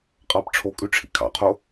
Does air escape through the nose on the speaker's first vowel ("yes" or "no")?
no